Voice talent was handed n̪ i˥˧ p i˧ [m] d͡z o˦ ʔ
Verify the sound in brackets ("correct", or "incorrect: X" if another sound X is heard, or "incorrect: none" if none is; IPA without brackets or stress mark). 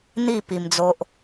correct